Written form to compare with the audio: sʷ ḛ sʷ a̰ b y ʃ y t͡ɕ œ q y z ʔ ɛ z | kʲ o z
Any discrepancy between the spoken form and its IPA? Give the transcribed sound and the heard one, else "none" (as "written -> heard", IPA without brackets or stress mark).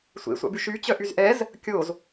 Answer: q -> ʔ